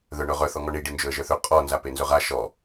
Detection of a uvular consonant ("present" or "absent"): present